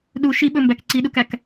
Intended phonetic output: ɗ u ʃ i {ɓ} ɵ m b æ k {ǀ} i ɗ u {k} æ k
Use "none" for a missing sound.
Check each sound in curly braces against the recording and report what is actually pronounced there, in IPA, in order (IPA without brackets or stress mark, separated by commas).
ɓ, ǀ, k